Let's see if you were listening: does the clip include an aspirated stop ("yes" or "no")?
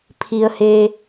yes